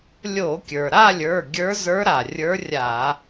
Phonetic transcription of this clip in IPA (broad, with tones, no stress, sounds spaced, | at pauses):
lʲ o˧˩˧ kʲ ə˞˩ ɾ a˥˧ lʲ ə˞˩˧˩ ɡʲ ə˞˧˥ z ə˞˧˥ ɾ a˩ rʲ ə˞˧˥ rʲ a˧˩˧